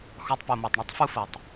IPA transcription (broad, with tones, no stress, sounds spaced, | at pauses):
x ɒ˦ tˤ p u˨ m ɒ˨ tˤ ɳ i˦ tˤ f u˦ f o˨ tˤ